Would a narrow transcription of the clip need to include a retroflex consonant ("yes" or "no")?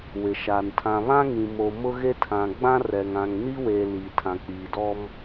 no